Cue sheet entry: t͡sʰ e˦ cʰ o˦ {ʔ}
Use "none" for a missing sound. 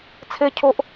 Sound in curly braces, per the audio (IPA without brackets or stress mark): ʔ